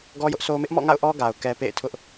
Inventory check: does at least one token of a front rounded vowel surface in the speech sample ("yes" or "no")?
no